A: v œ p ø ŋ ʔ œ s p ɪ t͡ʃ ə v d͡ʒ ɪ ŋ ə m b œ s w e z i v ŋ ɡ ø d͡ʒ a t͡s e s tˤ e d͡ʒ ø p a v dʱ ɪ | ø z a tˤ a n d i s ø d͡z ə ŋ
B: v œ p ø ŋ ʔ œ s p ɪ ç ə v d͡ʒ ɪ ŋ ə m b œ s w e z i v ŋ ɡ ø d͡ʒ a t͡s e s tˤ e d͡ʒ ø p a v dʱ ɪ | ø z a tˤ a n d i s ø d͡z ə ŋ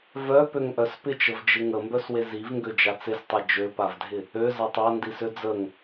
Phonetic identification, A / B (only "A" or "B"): A